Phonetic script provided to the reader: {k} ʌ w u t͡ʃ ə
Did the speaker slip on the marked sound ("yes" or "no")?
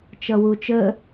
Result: yes